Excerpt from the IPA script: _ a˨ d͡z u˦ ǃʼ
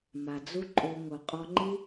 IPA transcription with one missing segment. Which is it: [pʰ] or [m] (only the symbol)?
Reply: m